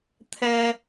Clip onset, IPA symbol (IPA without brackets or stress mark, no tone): t̪ʰ